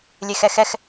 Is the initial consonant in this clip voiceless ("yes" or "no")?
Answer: no